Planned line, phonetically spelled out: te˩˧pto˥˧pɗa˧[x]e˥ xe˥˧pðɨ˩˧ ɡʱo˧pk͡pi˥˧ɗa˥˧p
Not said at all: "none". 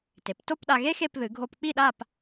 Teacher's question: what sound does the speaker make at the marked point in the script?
ɣ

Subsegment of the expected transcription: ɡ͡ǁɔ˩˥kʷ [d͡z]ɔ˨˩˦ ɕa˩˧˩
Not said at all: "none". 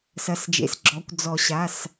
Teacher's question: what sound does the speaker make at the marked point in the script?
d͡z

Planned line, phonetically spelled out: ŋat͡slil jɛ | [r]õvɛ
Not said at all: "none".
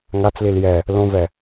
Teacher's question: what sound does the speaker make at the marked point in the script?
l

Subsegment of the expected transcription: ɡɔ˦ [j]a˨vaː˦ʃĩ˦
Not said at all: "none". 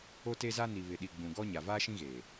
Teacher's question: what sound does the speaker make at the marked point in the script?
ɲ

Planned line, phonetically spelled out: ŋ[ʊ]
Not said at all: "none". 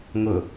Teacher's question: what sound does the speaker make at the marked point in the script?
ʊ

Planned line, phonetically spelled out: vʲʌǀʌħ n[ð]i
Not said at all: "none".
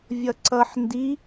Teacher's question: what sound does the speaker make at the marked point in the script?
d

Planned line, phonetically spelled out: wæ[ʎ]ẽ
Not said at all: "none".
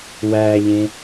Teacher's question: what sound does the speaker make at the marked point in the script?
ʎ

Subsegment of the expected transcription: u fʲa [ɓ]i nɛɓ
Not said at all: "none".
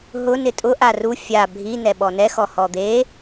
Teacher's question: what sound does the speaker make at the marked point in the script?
bʱ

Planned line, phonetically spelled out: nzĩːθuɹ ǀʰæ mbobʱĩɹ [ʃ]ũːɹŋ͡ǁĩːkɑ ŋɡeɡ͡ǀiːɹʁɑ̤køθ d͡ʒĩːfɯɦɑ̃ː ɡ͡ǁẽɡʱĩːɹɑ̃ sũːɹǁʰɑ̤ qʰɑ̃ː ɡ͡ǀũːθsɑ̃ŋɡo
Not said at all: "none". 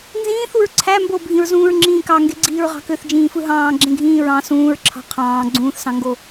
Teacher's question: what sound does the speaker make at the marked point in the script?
z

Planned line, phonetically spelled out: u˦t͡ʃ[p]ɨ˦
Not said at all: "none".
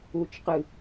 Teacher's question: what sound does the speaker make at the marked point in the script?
q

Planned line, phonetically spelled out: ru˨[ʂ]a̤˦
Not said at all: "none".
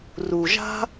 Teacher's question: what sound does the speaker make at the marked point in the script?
ʒ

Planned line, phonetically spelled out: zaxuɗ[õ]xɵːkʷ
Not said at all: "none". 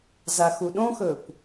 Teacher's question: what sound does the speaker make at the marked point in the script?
õ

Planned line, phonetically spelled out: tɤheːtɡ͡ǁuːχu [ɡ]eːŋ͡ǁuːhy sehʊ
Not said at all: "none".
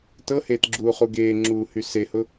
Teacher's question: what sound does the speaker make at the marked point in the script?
ɡ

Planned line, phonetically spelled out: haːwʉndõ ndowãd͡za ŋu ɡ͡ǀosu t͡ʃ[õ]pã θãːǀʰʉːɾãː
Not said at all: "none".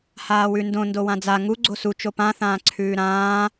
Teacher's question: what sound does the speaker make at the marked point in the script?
o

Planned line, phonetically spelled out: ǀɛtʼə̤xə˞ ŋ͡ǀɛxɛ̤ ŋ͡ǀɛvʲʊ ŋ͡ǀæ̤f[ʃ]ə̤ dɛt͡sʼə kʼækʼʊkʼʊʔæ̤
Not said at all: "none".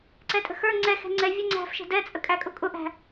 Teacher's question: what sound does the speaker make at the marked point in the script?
ʃ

